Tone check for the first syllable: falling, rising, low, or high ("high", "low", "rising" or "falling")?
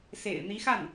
low